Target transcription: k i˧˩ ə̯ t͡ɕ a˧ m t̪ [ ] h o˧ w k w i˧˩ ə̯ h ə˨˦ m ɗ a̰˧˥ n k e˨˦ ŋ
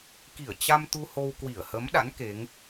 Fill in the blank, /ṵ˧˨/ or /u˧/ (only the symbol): u˧